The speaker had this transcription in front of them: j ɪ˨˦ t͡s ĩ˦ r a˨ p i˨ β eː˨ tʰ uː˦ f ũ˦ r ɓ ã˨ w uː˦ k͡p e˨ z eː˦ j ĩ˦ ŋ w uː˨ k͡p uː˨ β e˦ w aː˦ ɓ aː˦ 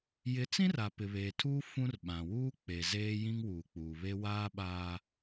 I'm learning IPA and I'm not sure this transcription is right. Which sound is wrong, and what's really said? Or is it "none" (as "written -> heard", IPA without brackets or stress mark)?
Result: i˨ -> ɪ˨